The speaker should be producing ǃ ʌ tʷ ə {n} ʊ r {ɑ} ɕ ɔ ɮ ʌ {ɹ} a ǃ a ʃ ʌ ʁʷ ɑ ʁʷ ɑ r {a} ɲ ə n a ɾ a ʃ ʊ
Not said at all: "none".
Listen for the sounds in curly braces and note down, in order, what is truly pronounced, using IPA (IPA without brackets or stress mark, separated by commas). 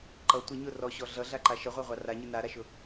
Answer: ɲ, ɔ, ɮ, a